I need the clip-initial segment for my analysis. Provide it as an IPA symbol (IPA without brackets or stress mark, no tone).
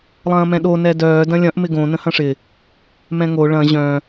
lˠ